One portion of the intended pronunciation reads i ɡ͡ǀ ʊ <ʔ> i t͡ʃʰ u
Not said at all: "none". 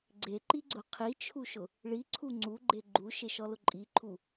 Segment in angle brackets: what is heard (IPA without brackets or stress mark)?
qʰ